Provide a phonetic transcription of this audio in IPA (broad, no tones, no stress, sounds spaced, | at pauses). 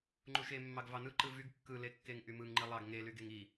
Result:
ŋ͡ǃ u ʃ e mː ɑ ɡ v ɑ n ɯ ǃ ɯ v y ɡ kː ɯ l e kː e ŋ ʔ y m ɯ ŋ ŋ͡ǃ i lˠ ɑ ɡ ŋ e l y ɡ e ŋ i